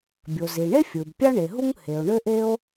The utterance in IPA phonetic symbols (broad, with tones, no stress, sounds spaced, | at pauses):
bʲ o˩ z i˩ ɳ e˥ fʲ ɯ˩ b pʲ ɑ˥ ɳ e˩ ɦ u˥ ŋ h e˩ o̯ ɳ ø˥ ʔ e˥ o̯